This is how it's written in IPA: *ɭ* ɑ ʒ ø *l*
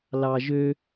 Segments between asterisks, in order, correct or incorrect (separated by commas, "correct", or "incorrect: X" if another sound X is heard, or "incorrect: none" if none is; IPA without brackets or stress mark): incorrect: l, incorrect: none